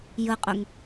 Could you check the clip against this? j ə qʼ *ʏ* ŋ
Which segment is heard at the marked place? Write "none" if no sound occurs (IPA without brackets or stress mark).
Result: ʏ